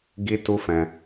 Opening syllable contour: high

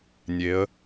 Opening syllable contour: rising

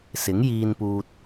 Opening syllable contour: rising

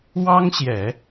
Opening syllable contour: high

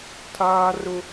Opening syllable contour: high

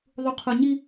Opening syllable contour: low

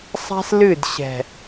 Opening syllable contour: high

